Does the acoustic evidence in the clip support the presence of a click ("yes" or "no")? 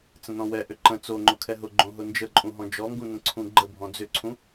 yes